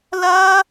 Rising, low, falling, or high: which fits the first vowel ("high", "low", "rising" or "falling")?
high